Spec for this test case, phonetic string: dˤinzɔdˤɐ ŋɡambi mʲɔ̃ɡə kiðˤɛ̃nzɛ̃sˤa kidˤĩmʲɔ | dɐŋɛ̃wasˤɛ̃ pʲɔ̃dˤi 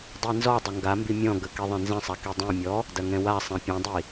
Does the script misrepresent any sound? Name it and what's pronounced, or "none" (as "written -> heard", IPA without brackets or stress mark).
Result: none